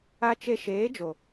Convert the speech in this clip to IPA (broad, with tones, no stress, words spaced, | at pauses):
a˧t͡ʃe˧ ʃeː˨˦d͡ʒo˨